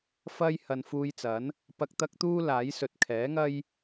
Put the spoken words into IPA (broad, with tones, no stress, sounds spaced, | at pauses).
f ɐ˥ j h ɐ˨ n f uː˧ j t͡s ɐ˨˥ n | p ɐ˧ k̚ t̪ ɐ˥ k̚ t̪ uː˥ l aː˨˥ j s ɵ˨ t̚ kʰ ɛː˨˥ ŋ ɐ˥ j